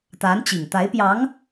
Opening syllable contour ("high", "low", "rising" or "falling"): rising